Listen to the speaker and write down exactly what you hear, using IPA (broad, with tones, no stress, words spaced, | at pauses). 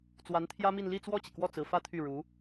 t͡swa˧˥nt̪ʰjä˥mi˥˧n li˥˧t͡swɔ˥˩t͡ɕi˩kwɔ˥˩ t͡sɹ̩˧˥fä˥t̪ʰy˥˩ɻu˧˥